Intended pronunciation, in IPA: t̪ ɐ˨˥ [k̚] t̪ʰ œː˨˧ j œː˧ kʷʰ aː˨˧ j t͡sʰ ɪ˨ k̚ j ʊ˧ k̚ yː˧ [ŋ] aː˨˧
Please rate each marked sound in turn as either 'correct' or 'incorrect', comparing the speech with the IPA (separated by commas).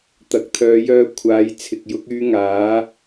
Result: correct, correct